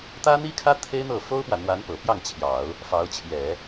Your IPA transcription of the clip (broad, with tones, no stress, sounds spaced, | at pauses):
t̪ ä˥ n̪ i˥ kʰ ä˥ t̪ʰ e˥ ɪ̯ n̪ ɤ˥˩ f o˥ ʊ̯ p w ä˨ n̪ w a˧˥ n p ɤ˨˩ p j ɑ˥˩ ŋ t͡ɕʰ j ɑ˨˩˦ ʊ̯ | f ɑ˧˥ ʊ̯ t͡ɕʰ j ɛ˨˩˦